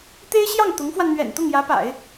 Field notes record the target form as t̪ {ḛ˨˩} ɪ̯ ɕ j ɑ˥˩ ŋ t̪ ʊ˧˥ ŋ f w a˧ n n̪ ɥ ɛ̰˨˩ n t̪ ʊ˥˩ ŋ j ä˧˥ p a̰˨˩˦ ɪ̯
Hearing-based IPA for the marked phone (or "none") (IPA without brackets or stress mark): e˥